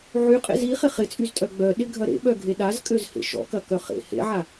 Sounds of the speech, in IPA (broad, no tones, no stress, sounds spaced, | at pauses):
ʕ y qʼ ḛ z i χ ɪ χ ɪ t͡sʼ y z tʼ œ ɡ͡b œ ɗ ɪ ɡʱ ɐ ɾ ḛ ɓ œ ɡʱ e ɗ a z kʼ ø z h ḛ ʃ ɔ̰ k ɐ k œ χ ḛ h ḛ ʕ a